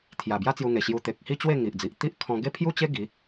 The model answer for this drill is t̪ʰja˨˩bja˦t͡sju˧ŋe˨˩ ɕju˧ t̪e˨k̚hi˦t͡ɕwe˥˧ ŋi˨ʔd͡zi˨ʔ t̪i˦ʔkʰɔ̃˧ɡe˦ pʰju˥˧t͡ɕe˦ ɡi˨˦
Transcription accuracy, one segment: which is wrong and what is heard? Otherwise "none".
none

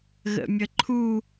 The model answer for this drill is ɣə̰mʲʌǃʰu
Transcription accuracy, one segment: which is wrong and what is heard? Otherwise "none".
ʌ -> ə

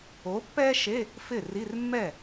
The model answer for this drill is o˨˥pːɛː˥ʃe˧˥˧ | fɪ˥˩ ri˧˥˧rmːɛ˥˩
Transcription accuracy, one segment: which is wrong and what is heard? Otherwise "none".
none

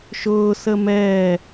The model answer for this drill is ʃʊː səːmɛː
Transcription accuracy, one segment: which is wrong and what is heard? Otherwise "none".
none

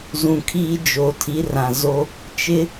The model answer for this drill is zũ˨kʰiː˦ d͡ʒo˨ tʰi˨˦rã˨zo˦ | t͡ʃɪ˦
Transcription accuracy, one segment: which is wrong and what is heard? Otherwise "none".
none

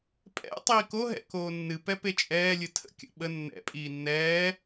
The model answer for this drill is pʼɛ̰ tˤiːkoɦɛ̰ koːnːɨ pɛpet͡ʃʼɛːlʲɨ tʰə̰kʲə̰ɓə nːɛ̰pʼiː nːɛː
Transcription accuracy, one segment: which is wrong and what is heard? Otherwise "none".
none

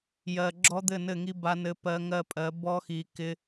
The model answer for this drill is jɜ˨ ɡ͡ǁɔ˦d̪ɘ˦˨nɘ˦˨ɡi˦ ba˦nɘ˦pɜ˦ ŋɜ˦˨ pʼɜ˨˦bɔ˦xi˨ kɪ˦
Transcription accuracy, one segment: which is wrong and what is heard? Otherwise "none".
ɡ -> ŋ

